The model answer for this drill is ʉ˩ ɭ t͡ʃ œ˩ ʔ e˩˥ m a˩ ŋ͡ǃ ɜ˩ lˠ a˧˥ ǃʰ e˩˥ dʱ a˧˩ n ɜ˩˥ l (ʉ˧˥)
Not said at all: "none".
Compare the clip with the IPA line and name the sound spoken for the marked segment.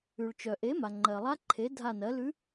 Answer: ʉ˧˥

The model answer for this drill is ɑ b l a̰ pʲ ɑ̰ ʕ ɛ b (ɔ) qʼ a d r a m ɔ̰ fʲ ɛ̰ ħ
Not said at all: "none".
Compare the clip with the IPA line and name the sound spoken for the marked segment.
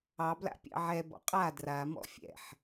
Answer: ɔ̰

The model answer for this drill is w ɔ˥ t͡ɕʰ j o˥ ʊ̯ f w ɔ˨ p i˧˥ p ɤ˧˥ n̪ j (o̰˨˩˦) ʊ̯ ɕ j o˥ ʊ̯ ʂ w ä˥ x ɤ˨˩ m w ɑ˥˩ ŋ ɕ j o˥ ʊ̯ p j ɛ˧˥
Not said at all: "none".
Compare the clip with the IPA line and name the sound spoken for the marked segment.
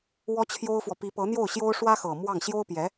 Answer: o˥˩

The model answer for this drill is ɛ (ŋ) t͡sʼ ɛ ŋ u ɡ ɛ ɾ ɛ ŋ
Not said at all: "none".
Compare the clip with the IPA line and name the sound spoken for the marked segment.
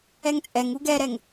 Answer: ŋ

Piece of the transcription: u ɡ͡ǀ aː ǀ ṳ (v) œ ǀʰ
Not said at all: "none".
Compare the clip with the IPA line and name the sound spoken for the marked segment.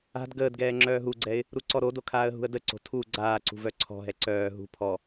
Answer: v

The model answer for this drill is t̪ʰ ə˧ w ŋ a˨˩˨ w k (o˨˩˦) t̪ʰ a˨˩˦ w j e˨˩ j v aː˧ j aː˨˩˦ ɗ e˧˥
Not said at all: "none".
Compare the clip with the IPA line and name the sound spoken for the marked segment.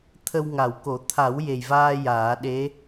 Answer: o˨˩˦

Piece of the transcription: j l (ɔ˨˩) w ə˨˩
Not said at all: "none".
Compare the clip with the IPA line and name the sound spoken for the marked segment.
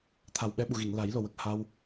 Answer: o˨˩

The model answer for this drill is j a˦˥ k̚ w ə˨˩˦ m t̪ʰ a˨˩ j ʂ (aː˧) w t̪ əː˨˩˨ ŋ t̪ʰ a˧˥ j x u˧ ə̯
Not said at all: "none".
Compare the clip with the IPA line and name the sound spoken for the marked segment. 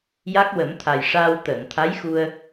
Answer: aː˧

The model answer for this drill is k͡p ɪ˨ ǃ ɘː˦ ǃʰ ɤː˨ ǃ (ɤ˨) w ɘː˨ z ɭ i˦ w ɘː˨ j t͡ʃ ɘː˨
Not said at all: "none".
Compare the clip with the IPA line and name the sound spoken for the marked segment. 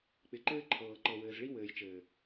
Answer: ɤ˨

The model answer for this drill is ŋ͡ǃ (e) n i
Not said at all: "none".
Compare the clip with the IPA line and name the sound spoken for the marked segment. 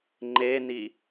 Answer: e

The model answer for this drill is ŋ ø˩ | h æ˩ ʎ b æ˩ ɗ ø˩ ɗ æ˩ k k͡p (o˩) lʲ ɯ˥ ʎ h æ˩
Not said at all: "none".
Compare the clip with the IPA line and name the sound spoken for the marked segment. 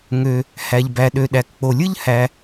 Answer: o˩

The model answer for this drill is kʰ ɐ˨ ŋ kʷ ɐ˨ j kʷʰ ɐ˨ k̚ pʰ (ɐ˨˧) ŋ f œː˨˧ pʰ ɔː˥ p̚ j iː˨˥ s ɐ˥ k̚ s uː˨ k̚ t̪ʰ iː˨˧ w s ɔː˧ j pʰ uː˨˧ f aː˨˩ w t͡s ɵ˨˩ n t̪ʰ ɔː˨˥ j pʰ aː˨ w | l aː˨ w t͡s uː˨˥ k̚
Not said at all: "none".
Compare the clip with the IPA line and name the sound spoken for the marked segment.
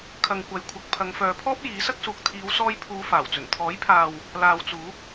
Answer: ɐ˨˧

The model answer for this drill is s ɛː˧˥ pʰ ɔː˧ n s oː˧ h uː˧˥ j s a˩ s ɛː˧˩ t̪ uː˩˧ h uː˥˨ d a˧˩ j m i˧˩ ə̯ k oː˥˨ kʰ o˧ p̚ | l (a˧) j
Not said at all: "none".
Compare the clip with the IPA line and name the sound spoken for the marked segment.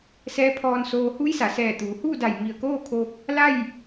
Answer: a˥˨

